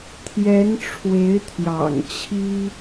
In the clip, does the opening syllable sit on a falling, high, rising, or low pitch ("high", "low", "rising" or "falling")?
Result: rising